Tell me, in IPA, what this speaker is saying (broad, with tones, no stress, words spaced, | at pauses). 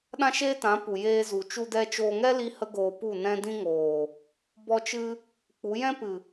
ɗã˦ʃeː˦tã˨˦ pu˨jeː˧zu˨ t͡ʃu˧dɛ˧t͡ʃoː˧ŋɛ˦ li˧ hə˦ɡoː˧pu˦˨ nɛ̃˧dĩ˧ ŋoː˨ | bɔ˧ t͡ʃɨ˧ | k͡pu˨˦jɛ̃˦ pɨ˨